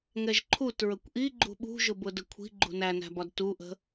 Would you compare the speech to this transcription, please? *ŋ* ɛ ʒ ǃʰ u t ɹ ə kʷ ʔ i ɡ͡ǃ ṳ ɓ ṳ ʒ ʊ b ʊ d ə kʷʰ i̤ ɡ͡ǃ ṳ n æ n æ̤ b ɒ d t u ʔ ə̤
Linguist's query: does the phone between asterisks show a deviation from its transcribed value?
no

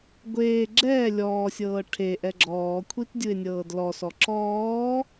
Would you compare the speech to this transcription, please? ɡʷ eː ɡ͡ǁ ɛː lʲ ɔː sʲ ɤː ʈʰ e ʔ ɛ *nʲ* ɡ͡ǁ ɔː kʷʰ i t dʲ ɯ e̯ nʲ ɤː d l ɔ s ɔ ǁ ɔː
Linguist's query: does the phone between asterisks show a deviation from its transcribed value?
yes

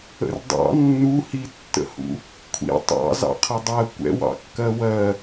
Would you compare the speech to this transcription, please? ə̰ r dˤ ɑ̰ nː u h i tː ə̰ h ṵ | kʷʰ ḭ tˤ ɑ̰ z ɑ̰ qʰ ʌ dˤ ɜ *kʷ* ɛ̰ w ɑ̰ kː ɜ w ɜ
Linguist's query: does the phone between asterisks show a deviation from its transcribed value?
no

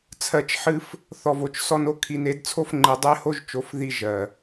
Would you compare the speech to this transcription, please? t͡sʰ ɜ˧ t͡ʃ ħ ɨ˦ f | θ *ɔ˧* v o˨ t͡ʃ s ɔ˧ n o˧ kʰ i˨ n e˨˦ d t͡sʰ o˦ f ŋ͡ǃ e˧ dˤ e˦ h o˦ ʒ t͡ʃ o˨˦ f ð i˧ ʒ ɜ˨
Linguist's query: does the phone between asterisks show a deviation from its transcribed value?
yes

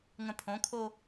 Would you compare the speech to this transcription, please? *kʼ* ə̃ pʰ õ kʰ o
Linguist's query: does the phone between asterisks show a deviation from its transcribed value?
yes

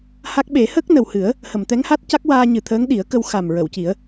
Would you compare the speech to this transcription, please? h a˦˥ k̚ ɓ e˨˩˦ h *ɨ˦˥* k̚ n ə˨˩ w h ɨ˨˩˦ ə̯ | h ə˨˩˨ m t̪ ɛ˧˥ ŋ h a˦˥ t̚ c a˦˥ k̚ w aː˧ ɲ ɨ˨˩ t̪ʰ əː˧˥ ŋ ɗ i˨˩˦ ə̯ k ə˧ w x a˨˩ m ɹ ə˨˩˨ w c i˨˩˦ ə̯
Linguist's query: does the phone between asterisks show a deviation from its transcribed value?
yes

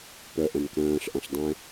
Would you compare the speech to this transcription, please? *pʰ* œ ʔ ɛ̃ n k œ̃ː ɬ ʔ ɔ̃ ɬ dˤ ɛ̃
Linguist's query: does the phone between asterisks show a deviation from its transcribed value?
yes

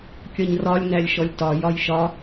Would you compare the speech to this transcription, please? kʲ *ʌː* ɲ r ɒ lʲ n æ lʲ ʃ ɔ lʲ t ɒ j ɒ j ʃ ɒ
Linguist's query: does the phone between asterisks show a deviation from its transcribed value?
yes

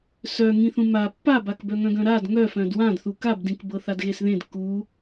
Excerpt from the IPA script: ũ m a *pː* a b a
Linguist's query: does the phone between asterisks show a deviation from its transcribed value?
no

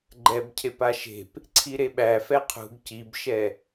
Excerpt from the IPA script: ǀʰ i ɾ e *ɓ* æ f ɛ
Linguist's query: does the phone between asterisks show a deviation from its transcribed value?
no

